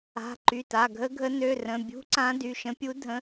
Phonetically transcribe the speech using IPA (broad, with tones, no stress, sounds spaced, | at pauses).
a̤˩˧˩ ǃ y˩˧˩ t a˩˧˩ ɡʱ ə˧˥ ɡʱ ə˧˥ n ø˩˧˩ r ə̃˩˧˩ bʲ ṳ˧˥ ǀ ã˧˥ d y˩˧˩ ʃ ə̃˧˥ pʲ u˧˥ dʱ ə̃˧˥